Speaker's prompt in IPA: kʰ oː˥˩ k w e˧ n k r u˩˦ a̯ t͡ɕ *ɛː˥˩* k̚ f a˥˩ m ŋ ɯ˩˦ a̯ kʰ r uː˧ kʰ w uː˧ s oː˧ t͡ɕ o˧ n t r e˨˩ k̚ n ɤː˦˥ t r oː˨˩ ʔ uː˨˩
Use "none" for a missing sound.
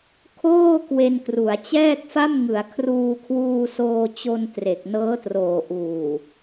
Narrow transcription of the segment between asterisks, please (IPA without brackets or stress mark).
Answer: ɛː˥˩